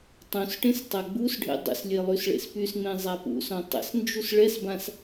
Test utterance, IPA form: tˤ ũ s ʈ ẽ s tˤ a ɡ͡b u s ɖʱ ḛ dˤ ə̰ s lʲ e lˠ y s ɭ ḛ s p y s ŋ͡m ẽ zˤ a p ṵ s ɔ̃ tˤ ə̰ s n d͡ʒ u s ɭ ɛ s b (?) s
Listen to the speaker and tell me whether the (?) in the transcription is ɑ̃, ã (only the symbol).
ã